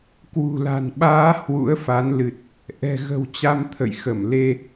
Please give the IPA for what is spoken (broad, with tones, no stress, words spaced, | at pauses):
kwṳ˨˩la̤˨˩nɓaː˨˦ hwṵ˧˥ə̯fa˨˦n lɨ˨˩t̚ | ʔɛ̤˨˩ɣə̤˨˩w t͡ɕa˧mt̪ʰə̰˧˨jxə˧˩m le˧